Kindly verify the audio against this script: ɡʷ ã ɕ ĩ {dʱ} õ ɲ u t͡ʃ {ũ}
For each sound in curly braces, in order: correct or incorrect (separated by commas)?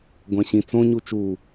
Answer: incorrect, incorrect